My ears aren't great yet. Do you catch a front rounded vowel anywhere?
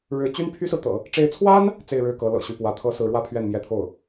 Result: yes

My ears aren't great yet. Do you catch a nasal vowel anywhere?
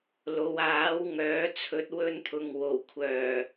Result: no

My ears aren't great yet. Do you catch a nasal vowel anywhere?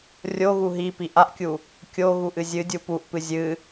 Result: no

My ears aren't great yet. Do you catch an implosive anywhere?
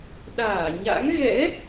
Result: yes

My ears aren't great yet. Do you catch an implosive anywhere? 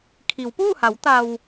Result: no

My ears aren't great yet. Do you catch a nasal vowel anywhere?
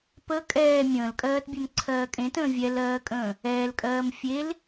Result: yes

